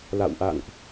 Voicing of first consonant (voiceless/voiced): voiced